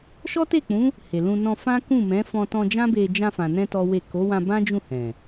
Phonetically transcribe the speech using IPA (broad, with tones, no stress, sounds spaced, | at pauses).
ʃ ɔ˦ t e˦˨ k͡p ũ˨˦ | h e˨ l ũ˧ n ɔ̃˧ f ã˦ k ũ˦˨ m ɛ̃˨˦ f ɔ̃˧ t ɔ̃˧ d͡ʒ ã˦ b e˧ d͡ʒ ã˧ f ã˨ n ɛ̃˧ t ɔ˦ w e˦˨ k o˨˦ w ã˧ b ã˦ d͡ʒ ũ˦˨ h ɛ̃˨